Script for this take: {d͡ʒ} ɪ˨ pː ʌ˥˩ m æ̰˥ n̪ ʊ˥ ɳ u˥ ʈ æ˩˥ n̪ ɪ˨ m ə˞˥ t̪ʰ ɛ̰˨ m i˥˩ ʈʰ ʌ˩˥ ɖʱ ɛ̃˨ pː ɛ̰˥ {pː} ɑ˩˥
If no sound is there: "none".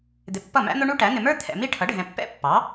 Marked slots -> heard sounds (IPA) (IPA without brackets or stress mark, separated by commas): d̪, pː